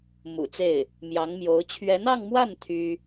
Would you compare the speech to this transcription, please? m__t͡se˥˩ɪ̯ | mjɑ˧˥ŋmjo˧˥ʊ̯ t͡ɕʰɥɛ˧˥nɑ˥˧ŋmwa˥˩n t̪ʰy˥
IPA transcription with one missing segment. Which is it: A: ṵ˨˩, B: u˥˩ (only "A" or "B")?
A